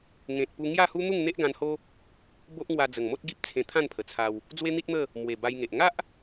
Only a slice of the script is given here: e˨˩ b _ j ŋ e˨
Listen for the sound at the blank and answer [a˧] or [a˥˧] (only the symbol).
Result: a˧